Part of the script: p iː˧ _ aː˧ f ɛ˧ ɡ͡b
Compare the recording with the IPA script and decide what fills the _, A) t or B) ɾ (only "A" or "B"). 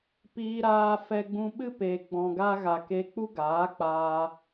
B